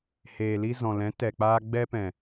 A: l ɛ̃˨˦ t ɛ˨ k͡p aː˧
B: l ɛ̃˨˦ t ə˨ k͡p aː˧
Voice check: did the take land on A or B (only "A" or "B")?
A